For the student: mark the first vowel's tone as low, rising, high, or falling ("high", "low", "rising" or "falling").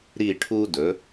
falling